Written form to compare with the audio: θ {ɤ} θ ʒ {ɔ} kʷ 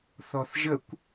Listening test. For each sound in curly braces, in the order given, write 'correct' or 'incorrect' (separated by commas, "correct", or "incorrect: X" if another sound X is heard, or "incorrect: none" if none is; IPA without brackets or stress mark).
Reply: incorrect: ɔ, incorrect: ə